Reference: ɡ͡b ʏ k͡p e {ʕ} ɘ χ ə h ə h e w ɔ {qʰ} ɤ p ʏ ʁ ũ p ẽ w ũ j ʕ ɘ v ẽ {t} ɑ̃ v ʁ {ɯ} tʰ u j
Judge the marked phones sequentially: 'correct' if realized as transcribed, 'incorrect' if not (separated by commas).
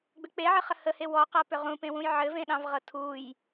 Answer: correct, incorrect, incorrect, incorrect